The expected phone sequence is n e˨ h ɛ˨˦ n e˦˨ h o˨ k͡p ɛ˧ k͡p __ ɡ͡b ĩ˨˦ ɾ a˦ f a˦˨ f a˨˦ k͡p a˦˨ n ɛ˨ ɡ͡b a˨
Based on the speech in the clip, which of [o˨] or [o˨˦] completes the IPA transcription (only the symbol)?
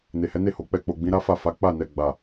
o˨